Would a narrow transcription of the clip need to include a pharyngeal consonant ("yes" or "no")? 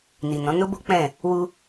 no